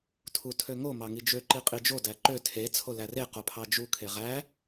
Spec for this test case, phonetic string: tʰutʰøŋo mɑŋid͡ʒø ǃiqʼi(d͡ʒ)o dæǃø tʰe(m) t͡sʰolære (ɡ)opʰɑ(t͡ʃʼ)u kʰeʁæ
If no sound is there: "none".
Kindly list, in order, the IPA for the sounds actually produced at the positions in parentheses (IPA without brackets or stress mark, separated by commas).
d͡ʒ, none, q, d͡ʒ